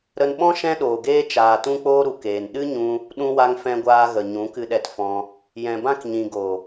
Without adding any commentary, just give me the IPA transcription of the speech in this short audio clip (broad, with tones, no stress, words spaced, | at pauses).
ɾə˧nɓɔ̃˦ ʃɛ̃˦ɗoː˨ɡeː˦ t͡ʃaː˨tũ˧k͡poː˧ ɾu˨keː˨nɗɨ˦ɲũ˧ | ɗũ˧wa˧ŋ fɛ̃˧ɡʷaː˧ɣə˨ ɲũ˨˦kɨ˧ɗɛ˧tfɔ̃˧ | jɛ̃˨bã˧k ɲĩ˨ɡo˨